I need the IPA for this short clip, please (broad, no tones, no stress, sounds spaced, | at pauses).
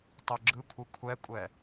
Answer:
tˤ o ɡ͡ǁ ɯ kʷʰ ɯ kʷʰ ɛ kʷʼ ɛ